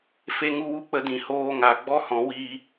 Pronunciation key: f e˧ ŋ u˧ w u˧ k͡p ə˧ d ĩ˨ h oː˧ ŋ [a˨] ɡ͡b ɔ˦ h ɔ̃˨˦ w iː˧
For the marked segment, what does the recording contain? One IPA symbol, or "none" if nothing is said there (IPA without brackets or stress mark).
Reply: a˨